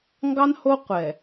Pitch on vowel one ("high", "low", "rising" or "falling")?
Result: high